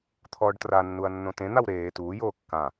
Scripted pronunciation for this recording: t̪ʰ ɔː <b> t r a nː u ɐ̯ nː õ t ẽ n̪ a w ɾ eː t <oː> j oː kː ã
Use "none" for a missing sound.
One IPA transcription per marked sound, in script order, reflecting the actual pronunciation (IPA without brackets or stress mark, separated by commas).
ɖ, uː